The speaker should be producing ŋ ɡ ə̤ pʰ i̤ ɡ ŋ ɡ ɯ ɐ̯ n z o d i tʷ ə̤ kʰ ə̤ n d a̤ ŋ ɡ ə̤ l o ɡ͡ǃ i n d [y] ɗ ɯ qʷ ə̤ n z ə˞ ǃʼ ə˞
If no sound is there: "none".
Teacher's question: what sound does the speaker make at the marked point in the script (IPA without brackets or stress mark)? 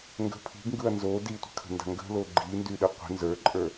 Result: y